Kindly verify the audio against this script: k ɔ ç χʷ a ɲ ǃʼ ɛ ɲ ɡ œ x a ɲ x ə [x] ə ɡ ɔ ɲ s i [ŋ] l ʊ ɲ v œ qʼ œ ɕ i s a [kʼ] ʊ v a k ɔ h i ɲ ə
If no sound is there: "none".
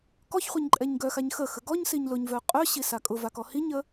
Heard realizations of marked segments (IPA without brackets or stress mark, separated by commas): x, ɲ, kʼ